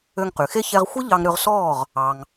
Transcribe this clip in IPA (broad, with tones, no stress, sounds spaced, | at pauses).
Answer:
ø˧ ŋ q y˩ x e˥ ç ɛ˧ ʁ xʷ e˥ ʎ ɑ˧ ŋ ɾ ø˧ ʁ s ɔː˥˩ ʁ | ɑ˩ ŋ